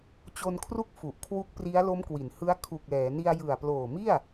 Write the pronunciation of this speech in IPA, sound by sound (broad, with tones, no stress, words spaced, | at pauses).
t͡ɕo˧nkʰru˥˩k̚ fu˨˩ʔkʰwu˦˥k̚pri˦˥a̯ lo˦˥mkwi˩˦nhɯ˦˥a̯ kʰu˨˩k̚lɛː˩˦ni˧a̯ jɯ˨˩a̯ploː˨˩mi˥˩a̯